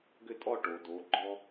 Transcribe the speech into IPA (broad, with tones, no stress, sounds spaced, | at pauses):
ɡ ʏ˥˧ tʼ ɔ˥˧ ʈ o˩˧ d o˩˧ ɡ͡ǃ ɔ˧